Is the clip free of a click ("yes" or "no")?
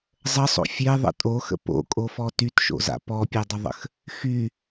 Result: yes